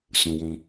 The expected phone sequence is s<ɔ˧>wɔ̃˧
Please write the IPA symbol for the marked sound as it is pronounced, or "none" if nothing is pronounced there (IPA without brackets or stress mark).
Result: ɔ̃˧